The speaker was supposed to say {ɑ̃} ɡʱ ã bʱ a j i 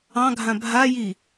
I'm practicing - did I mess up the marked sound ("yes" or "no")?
no